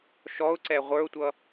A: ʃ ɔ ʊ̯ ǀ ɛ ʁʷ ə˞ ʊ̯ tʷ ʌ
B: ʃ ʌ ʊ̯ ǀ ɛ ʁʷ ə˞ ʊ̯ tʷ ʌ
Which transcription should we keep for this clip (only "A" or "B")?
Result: A